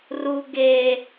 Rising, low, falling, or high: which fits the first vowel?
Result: high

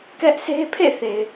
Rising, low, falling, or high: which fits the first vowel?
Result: high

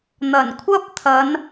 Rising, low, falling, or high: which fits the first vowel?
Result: low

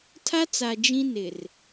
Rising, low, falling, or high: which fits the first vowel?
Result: high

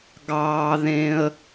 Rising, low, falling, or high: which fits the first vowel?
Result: low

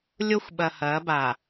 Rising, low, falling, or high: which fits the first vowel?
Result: high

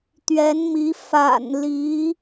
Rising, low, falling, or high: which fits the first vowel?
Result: rising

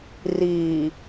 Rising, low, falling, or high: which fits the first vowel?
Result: low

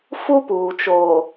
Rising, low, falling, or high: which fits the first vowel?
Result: high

